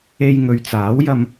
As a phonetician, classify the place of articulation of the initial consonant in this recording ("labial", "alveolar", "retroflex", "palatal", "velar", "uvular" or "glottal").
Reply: palatal